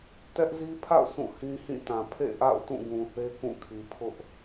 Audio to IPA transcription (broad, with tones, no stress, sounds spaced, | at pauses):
t ɛ˦ ʔ z i˦ pʰ a̰˦˨ ʊ̯ s ũ˦˨ h ĩ˦ h ĩ˦˨ t ã˨ pʰ ḛ˦˨ ʔ a̰˦˨ ʊ̯ t ũ˦˨ ɡ ũ˨ θ e˦ k ũ˦˨ kʰ i˨ pʰ ʊ˦ ʔ